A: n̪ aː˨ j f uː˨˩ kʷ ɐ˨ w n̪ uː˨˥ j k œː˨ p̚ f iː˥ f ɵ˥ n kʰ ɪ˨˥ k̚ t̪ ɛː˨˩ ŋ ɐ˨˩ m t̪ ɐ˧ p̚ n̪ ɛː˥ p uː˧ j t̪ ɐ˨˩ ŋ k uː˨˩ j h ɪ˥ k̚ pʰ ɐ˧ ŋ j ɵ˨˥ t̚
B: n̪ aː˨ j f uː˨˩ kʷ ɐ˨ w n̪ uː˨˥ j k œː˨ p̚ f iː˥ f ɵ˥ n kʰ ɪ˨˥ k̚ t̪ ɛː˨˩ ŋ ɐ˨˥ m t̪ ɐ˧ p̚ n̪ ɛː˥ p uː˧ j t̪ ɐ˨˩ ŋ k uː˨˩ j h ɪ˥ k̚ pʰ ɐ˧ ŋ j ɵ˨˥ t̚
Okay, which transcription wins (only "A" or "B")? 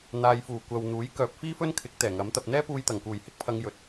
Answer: B